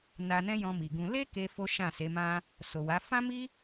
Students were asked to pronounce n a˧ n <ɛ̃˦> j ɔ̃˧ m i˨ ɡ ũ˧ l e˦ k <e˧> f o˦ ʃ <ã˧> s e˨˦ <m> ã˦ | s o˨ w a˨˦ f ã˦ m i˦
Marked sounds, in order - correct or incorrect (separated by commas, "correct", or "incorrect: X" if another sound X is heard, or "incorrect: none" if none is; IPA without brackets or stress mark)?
correct, incorrect: e˦, incorrect: ã˦˨, correct